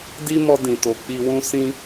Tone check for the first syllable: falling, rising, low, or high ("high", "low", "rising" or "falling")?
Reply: high